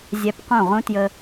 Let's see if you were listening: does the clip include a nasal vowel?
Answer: yes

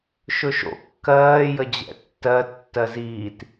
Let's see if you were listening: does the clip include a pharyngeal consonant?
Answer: no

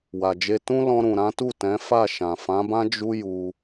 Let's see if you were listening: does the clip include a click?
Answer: no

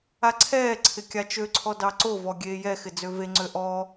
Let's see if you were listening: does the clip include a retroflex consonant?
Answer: no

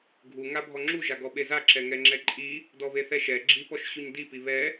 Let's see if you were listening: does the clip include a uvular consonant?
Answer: no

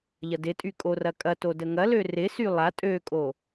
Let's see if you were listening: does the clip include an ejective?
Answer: yes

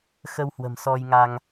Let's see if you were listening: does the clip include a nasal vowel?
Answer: no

